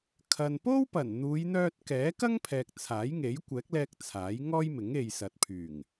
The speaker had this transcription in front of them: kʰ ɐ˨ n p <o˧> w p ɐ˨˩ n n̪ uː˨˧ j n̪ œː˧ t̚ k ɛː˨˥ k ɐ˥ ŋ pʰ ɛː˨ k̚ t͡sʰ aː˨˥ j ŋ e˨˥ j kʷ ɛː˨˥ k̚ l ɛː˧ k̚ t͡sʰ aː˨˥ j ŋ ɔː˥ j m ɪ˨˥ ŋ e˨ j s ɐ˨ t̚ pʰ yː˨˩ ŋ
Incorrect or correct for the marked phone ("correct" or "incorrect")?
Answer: incorrect